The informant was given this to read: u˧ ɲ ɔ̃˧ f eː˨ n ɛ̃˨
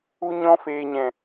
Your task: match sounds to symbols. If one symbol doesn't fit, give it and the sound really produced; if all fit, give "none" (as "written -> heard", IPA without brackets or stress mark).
n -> ɲ